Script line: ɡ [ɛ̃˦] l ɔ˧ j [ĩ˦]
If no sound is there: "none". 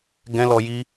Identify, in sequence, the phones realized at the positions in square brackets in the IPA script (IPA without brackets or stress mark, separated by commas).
ɛ̃˦, i˦